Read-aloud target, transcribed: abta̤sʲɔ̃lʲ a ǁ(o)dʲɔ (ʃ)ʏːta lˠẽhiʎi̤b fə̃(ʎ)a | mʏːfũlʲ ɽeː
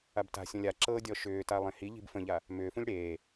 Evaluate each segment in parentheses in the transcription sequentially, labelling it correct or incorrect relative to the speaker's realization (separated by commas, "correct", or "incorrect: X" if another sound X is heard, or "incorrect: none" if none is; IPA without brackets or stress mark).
incorrect: ɤ, correct, correct